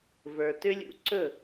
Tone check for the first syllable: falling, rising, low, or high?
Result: low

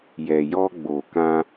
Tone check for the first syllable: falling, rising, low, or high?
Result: low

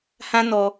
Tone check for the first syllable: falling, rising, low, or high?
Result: high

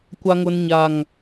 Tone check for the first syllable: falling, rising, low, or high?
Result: low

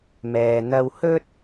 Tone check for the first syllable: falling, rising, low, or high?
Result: low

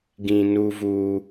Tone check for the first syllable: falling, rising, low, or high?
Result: low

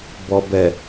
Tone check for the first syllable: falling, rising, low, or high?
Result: low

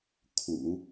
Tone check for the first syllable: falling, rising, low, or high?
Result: low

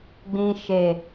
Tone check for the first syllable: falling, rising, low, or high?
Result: low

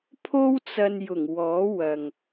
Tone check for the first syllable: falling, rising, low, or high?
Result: high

